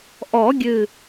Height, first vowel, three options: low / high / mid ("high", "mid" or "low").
mid